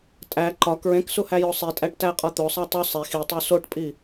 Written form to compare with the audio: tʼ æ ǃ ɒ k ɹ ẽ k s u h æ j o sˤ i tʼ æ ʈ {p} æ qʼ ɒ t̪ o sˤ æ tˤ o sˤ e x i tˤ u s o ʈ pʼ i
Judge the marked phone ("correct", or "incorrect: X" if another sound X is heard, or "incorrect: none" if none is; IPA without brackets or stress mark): incorrect: t